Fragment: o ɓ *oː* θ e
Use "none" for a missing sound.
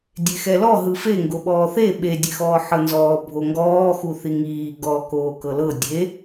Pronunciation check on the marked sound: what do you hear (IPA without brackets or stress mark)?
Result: ɔː